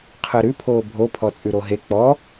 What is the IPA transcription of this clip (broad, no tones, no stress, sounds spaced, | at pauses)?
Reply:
qʰ əː ɾ ʉ pʰ oː bʱ o pʰ ɔ t͡sʼ ʉ ɾ o ɦ e k͡p ɔ